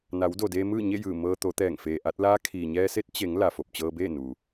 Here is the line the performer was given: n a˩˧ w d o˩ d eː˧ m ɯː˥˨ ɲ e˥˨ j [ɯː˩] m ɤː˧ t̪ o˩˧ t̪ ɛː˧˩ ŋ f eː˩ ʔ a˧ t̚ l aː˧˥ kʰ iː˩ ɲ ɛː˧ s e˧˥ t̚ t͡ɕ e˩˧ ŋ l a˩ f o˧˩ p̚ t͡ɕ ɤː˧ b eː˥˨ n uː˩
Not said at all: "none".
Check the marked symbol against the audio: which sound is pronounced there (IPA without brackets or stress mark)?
ɯː˧˩